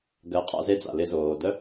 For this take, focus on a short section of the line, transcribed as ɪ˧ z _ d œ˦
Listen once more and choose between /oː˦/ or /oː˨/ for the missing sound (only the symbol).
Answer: oː˨